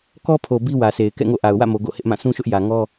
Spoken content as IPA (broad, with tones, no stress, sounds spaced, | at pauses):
k ɔ˦ pʰ o˨ b i˦ w ä˨ s e˨ ɪ̯ k ɛ̰˦˨ ŋ o̰˦˨ ʔ a˨ ʊ̯ w ä̰˦˨ m o˨ ɡ o̰˦˨ h ɪ˦ ʔ m ã˦˨ s ũ˦ ʃ ʊ˦ ʔ j ä˨ ŋ ɔ˦